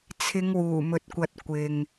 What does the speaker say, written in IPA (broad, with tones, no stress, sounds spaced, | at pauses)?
t͡sʰ ɪ˨˧ ŋ w uː˨˩ m ɵ˨ t̚ kʷ ɐ˨ t̚ kʷ ɪ˨ ŋ